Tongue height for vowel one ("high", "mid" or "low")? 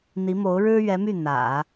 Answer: high